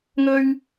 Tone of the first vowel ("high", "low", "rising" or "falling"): high